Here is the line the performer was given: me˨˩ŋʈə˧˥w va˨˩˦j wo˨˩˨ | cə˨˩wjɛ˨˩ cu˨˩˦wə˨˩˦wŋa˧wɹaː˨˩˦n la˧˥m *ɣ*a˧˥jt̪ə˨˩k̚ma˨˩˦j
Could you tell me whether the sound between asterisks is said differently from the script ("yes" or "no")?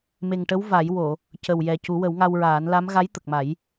no